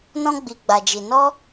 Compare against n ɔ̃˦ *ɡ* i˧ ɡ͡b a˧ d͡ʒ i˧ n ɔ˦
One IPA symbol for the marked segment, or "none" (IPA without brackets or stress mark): ɡ͡b